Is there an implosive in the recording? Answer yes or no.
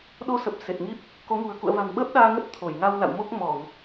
yes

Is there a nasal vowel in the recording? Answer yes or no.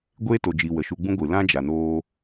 yes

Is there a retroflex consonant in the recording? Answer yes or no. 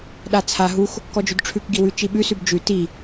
yes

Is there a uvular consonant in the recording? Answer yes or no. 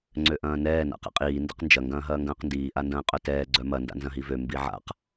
yes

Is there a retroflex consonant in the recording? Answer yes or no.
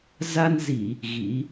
no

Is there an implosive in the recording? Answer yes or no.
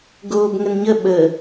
yes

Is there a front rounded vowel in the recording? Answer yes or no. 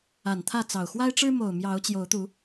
no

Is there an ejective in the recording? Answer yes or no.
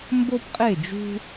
yes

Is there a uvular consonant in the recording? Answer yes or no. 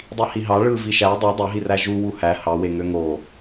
no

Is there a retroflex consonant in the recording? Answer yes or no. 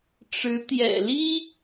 yes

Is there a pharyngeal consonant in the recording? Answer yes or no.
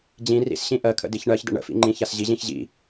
no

